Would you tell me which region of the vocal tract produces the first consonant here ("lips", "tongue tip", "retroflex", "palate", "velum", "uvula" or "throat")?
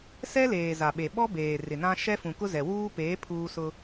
tongue tip